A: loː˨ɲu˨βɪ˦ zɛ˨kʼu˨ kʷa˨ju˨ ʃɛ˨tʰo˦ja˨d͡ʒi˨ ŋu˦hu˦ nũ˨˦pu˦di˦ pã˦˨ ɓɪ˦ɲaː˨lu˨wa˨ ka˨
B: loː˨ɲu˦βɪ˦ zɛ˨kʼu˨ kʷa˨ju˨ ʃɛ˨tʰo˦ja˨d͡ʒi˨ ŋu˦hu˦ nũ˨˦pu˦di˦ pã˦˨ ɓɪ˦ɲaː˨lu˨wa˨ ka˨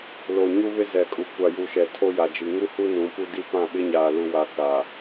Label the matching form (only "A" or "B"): B